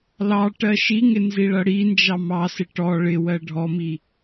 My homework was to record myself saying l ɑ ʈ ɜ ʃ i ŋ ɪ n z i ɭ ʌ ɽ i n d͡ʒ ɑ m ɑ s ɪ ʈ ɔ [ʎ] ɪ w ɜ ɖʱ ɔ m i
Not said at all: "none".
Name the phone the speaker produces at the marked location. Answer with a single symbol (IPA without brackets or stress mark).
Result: ɭ